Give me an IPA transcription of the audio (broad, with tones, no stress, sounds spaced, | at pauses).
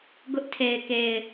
ɡ ʊ˦ ʔ tʰ e˨ ɪ̯ k e˨ ɪ̯